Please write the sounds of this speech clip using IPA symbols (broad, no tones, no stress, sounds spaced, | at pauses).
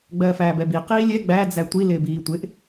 ɡ͡b ɜː f æː b ɛ b i q iː lʲ ɛ ɡ͡b æ d͡z æ tʷ i l ɪː b iː tʷ ɪ ʔ